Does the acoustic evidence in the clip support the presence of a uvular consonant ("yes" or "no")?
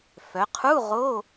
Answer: yes